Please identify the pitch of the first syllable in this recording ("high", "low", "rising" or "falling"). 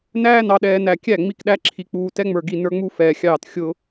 high